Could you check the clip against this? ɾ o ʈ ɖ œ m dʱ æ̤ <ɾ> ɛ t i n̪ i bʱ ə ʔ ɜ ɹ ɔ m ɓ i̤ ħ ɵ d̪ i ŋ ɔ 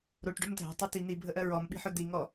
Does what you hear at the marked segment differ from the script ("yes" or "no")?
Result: yes